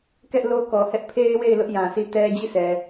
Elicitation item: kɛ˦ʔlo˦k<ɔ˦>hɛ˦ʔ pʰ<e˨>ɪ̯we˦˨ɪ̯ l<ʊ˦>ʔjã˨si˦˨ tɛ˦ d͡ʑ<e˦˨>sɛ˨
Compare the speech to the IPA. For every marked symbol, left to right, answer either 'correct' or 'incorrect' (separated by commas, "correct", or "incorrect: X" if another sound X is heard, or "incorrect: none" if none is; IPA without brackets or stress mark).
incorrect: ɔ˨, incorrect: e˦, correct, incorrect: i˦˨